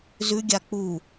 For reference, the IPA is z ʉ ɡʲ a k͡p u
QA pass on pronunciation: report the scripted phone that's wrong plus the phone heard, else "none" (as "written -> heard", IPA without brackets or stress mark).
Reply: none